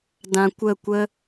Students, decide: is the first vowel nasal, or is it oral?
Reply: nasal